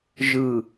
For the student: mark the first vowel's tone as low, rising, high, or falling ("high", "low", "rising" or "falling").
low